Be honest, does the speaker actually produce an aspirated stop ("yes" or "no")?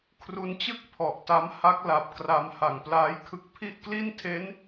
yes